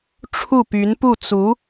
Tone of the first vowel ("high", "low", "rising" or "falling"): falling